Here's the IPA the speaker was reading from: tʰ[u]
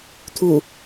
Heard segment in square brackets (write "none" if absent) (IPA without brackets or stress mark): u